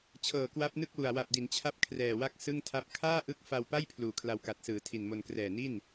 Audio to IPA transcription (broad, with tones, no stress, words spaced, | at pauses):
t͡ɕʰɤː˨˩kwa˦˥p̚nɯ˥˩k̚wu˨˩a̯ wa˨˩p̚di˩˦nt͡ɕʰa˦˥p̚ kʰrɛː˨˩wa˥˩k̚ sɯ˥˩ŋtʰa˥˩p̚ kʰaː˥˩ʔɯ˦˥k̚ fa˧wpa˥˩j pʰluː˨˩kʰla˧wka˨˩t̚sɯː˩˦ tʰi˨˩nmo˧n krɛː˨˩ni˥˩n